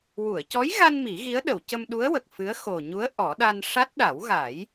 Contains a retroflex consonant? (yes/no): yes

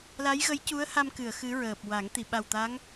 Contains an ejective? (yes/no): no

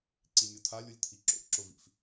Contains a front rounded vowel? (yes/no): no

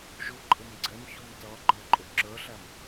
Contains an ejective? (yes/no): yes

